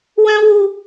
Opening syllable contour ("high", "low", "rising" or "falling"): high